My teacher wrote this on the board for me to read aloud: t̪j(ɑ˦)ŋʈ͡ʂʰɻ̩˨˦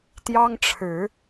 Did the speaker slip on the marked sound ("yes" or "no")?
no